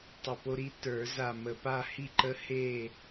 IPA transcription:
tˤə˧˩po˦ɾi˦ tə˞˨˩˦za˧˩mə˧˩ pa˥˨hi˥˨ǃə˦ he˥˨

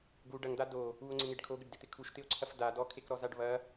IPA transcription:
ɡu ɖɐŋd̪a do | uo̯ŋ͡ǀɪŋeɖ kʰoɡɪɖdɪt̪ɪ kʰuʃt̪ɪo̯ǀʰɐf da dɔkʰekɾɔzaɖ βɐ

